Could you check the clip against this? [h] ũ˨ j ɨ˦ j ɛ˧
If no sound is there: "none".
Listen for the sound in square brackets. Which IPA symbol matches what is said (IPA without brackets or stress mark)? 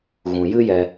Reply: ɣ